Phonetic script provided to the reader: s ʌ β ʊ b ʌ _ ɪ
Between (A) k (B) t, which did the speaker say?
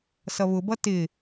B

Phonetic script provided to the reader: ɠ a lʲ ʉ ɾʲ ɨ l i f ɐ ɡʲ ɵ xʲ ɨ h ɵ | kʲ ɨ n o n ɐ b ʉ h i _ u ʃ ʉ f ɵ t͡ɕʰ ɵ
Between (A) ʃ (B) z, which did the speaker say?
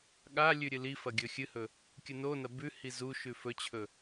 B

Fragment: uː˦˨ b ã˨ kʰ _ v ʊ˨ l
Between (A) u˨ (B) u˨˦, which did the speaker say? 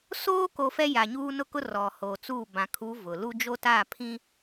B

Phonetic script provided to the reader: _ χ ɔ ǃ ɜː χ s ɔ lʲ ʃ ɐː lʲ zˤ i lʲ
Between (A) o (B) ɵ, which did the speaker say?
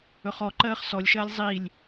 B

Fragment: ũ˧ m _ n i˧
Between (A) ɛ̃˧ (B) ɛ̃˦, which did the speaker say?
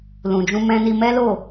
A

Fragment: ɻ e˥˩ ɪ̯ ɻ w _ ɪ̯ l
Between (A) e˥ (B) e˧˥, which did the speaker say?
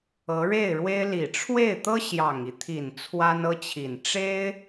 A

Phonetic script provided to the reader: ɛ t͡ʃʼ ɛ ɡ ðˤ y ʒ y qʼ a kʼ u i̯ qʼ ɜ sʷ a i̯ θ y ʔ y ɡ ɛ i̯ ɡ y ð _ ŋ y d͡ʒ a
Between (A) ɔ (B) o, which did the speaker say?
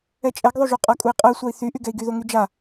B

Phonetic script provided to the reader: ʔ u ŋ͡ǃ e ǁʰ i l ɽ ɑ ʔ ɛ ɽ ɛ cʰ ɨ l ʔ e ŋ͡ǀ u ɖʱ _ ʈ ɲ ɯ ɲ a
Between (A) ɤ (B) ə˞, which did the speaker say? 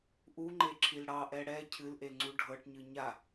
A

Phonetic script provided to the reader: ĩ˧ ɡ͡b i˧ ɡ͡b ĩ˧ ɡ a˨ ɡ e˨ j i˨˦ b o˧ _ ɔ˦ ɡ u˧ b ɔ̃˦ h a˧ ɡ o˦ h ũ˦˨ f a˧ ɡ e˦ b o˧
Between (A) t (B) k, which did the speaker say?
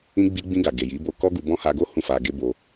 B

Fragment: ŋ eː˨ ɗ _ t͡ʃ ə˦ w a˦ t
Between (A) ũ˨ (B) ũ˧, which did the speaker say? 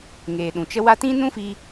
A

